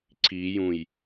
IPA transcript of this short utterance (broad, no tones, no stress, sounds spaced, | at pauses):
ǀ i j ũ j